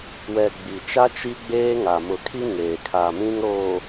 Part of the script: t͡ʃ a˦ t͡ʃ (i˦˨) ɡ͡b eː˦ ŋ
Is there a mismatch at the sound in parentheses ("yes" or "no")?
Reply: yes